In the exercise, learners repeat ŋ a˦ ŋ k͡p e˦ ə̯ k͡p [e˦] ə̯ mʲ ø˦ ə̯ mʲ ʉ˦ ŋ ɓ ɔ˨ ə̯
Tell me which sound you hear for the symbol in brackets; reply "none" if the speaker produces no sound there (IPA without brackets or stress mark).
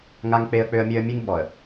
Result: ø˦